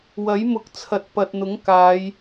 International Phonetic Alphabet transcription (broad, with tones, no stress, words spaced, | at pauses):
wɐ˨˥jmʊ˨˥k̚t͡sʰɐ˨˥t̚ pɐ˨t̚n̪ʊ˨˥ŋ kaː˨˧j